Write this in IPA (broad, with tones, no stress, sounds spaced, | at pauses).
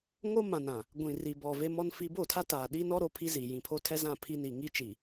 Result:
ŋ o˦ m ã˨ n ã˨ | ɡʷ ĩ˨ r i˨ b ɔ˨ v e˦ m ɔ˦ n f i˦ b o˦˨ tʰ a˦ t aː˨ ɗ i˦ n ɔ˦ ɾ o˦ pʰ i˦ z i˨ j ĩ˨ pʰ o˦ tʰ ɛ˦ z ã˦˨ pʰ i˦ n i˨ ŋ i˦ t͡ʃ i˨